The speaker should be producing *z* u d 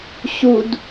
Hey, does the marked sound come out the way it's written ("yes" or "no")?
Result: no